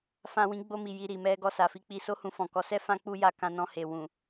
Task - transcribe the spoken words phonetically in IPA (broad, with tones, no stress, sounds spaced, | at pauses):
f ã˧ w ĩ˧ ɡ͡b o˧ m i˨ j i˧ ɾ i˨ m ɛ˧ ɡ ɔ˧ s a˨ f i˧ k͡p i˧ s o˦ h ũ˧ f ɔ̃˨ k ɔ˧ s ɛ˦ f ã˦ k͡p u˦ j a˧ k ã˧ n ɔ̃˧ h e˨ w ũ˨